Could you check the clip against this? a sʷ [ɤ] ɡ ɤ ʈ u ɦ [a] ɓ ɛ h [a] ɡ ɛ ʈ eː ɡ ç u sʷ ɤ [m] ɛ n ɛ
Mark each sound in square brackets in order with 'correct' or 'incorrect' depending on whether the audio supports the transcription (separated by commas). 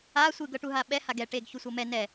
incorrect, correct, correct, correct